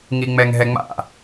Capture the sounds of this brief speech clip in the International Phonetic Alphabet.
ŋiŋ͡mɛŋɦɛŋ͡ma̰

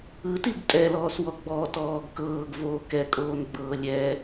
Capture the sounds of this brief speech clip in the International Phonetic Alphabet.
ɯtiɡ tʼɛlɔːswɔ ɡ͡bɔtɔːɡ kɤːɡvoː kɛkʼoːnɡ͡bɤː lʲɛ

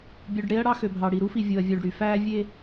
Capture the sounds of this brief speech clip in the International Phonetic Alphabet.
bʲu˨ɖɽe˦ɐ̯ ɽɑ˦xø˨bʱɑ˨ɽi˨ ɾu˦fi˨ vʲo˨ɐ̯ vʲuː˨ɖɽy˨fæː˦ vʲe˦

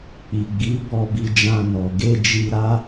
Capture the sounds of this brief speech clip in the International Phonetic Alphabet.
k͡pi˨ɡ͡bi˨˦ bɔ˧bi˧ d͡ʒã˧nɔ˨ ɡe˧ d͡ʒi˧ɾa˦

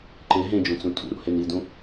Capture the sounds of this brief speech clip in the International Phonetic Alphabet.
ǃe ɦẽd͡ʒũt͡sũ tʼṵɾṵ henidũ

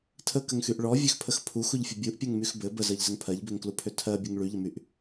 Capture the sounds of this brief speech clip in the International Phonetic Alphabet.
tʰəkəŋxyʔ ɭɔvʲøxpʰəx pʰuxuʎfʲə bʲuʔpʲɜŋmyx bɘ bəzɜʎzəŋ pʰɜʎbøŋklupʰø tʰɜbʲɘŋ ɭyʎəmyʔ

